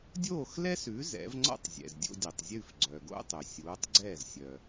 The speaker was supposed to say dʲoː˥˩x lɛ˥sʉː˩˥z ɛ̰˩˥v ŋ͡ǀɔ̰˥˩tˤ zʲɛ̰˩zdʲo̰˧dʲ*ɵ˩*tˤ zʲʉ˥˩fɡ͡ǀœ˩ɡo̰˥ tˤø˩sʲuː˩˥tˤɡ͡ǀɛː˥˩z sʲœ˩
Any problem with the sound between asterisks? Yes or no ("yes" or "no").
no